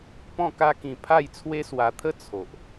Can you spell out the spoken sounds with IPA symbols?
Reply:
p ɔ̃˥˧ k a˦ k ĩ˧ pʰ a˥˧ j t͡sʰ w e˦ s w a˧ t̪ʰ ə˥˧ t͡sʰ o˨ ʔ

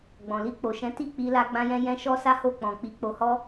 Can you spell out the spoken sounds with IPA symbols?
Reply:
ɡ͡b ɔ̃˨ l i˧ k͡p o˨ ʃ ɛ̃˨˦ t i˦˨ k͡p i˧ l a˧ ɡ͡b ã˧ j ɛ̃˧ j ɛ̃˦ ʃ ɔ˦ s a˦ h o˦˨ k͡p ɔ̃˨ k͡p i˨˦ k͡p o˧ h ɔ˦

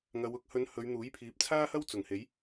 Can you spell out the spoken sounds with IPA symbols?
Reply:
ŋ ɐ˨˧ w ʊ˧ k̚ h ɵ˧ n h ɵ˨˧ ɥ n̪ uː˨˥ j pʰ iː˨˥ p̚ t͡sʰ aː˥ h ɐ˥ w t͡s ʊ˨˩ ŋ h e˨˥ j

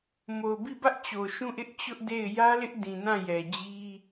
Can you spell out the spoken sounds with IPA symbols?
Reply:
m o˨ ʊ̯ b i˦˨ b ä˦ ʔ t͡ɕ o˨ ʃ ũ˦˨ ʔ ɪ˦ ʔ t͡ɕ ʊ˦ ʔ d e˦˨ ɪ̯ j ä˦ l ɪ˦ ʔ d ĩ˨ n ã˦˨ j ɛ˨ d͡ʑ i˦

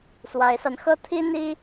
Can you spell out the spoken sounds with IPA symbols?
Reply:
s w a˧˥ ɪ̯ s a˧ n x ɤ˥˩ t̪ʰ i˥ n̪ i˥

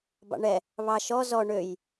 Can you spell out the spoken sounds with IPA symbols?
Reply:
b ɑ̰ ɳ ɛ | β ɑ ʃ ɔ z ɔ ɳ ø j

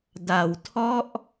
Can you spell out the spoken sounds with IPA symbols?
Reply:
d a˩˦ w tʰ ɔ˥˩ ʔ

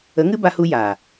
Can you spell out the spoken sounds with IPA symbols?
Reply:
ə˨˦ ŋ ɨ˦ b a˧ h u˧ j aː˨

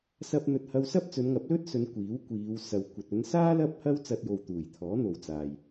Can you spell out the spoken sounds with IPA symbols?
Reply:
s ɐ˧ p̚ n̪ ɵ˨ t̚ h ɐ˧ w s ɐ˥ p̚ t͡s ɵ˨˧ n ŋ ɐ˨˥ p̚ l ɵ˥ t̚ s ɵ˨˧ n kʷ iː˨˥ w kʷ iː˨˧ w s ɐ˨ w kʷ ɐ˨ t̚ ɵ˨˧ n s aː˥ l ɐ˥ p̚ h ɐ˥ w t͡s ɐ˧ t̚ j o˨ w t̪ uː˨˩ j t̪ʰ ɔː˨˥ n̪ o˨ w t͡s aː˨ j

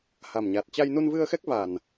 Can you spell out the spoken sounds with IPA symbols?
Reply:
h a˨˩ m ɲ a˨˩ t̚ t͡ɕ a˧ j n u˧ n v ɨ˧ ə̯ x ɛ˦˥ k̚ v a˨˩ n

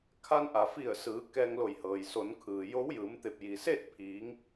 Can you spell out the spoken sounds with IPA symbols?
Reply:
kʰ a˧ n ʔ a˩ f i˧˩ ə̯ s ɯː˩˧ k ɛː˧ ŋ l o˧˩ j h ɤː˩ j s o˩˧ n kʰ ɯː˩ j o˧˥ w j ɯː˩˧ m t̪ e˧˩ p̚ j i˩ s e˥˨ t̚ pʰ iː˩˧ ŋ

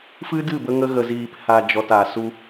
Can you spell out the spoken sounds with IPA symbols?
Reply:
f ɨ˦ d ɨ˦˨ b ə˧ ŋ ə˧ ɣ ə˨ z iː˨ p h a˨ d͡ʒ ɔ˨ t aː˨ s u˧

